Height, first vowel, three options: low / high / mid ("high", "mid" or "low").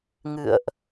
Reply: high